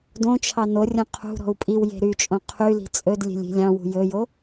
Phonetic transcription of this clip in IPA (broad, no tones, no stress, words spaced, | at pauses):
dõt͡ʃʰɑ no rʲõqʰṳɾɔ̤u̯ pʼiwje̤ ɾyt͡ʃʼõ qʰyli̤ t͡sʼɵdlʲe̤lʲ i̤lʲɑ̃wṳ jɵjo